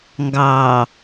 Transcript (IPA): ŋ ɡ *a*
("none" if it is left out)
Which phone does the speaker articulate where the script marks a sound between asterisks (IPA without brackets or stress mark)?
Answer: ɑ